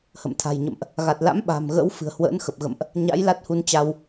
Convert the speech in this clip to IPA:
h ə̰˧˨ m t̪ʰ a̤˨˩ j ɲ ə̰˧˨ m ʔ | ɣ a˨˩ t̚ l a̰˧˥ m ɓ a̤˨˩ m ɣ ə̰˧˥ w f ɨ̤˨˩ ə̯ h w ə̰ː˧˥ n x ə˨˩ p̚ ɣ ə̰˧˨ m ʔ | ɲ a̰˧˥ j l a˦˥ t̚ h u˧ n t͡ɕ a˧ w

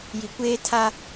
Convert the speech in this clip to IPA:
j i˨ kʷ eː˦ tʰ a˦

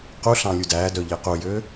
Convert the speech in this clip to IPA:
q u ɬ ɑ̃ lʲ u d æː d œ ʎ e q u j ø

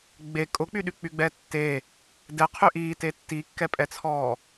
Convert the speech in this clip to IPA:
ɡ͡b e kʼ ʊ k͡p y ɗ y k͡p y ɡ͡b ɛː tː e | d ɛ qʰ y ʔ iː t e tː i kː ɛ pʼ ɛ t͡sʰ ɔː

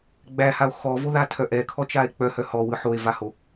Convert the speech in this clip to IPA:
ɡ͡b æ h a o̯ x ɔ v o ð a tʰ œ ʔ ɛ kʰ ɔ t͡ʃ a e̯ k͡p œ h œ h ɔ w ɯ ħ o e̯ v a h o

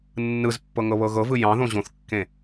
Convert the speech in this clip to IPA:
nː ɯ z pː ɤ ŋ ɤ β ɤ ɣ ɤ v ɯ j ɑ̃ ð õ ʑ õ θ kː ẽ

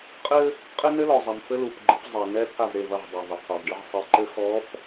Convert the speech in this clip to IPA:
qʼ ɘ˦ | qʼ ɘ˦ n ɘ˦ l ɔ˨ zˤ ɛ˨ m f ɘ˦ l u˨ p ɡ͡ǃ ɘ˨˦ p zˤ ɛ˨ n ɛ˦ t̪ʰ a˦˨ v ɾ e˦˨ v ɐ˦˨ ʁ dˤ a˨ v ɐ˨ qʰ o˨ v ɖ ɨ˦ ʁ sˤ ɨ˨ ǃ ɘ˦ x ɔ˨˦ p

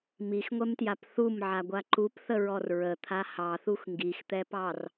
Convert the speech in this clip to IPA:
m i x ŋʷ ɛ m t j a p θ u m ʕ a ɡʷ a ǃ u p θ ə ɹ ɔ r ɹ ə t̪ʰ a h ɑ θ u x ŋ ɡ i x t̪ ɛ p ɑ r

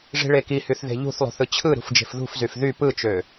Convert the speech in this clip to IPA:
ʐ i̤ ɭ e k i h y θ ð e̤ ʎ ṳ θ lˠ ṳ θ ɯ t͡ɕʰ ɯ ɾ ṳ f d͡ʒ e̤ f ð ṳ f z y f ð y p ɯ t͡ʃ ø

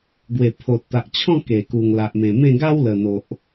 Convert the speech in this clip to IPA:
ɡ w e˨˩ pʰ o˨ t̚ t̪ a˨ ʔ t͡ɕʰ ɔ̃˥˧ k e˨˩ k u˨˩ ŋ l a˨ ʔ m ẽ˨˩ m ẽ˥˧ ɡ a˦ w l ə˨˩ n̪ o˨ ʔ

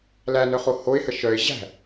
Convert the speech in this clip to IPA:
l æ n œ χ o h o ɪ̯ h ə ʃ œ ɪ̯ ʑ æ̤

